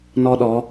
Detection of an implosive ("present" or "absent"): present